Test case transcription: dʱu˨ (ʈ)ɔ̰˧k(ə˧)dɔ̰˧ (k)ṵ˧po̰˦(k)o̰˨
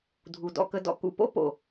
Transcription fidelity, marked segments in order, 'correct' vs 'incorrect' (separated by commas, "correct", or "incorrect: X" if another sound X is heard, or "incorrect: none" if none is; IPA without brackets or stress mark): incorrect: d, correct, correct, incorrect: p